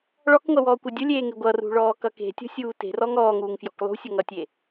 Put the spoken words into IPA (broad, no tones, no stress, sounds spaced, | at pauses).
ɭ ɔ k ŋʷ ɐ w ɔː kʷ ɐ dʲ ʊ lʲ eː ŋ e ɡʷ ʌ r ṳ ɭ ɔː k ʌ k e̤ tʲ ɔ̤ sʲ uː t e̤ r ɔ ŋ ɔː ŋ uː ŋ f j ɔ̤ k lˠ ṳ sʲ ʌ ŋ ʌ tʲ e